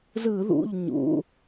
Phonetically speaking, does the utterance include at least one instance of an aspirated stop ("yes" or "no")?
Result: no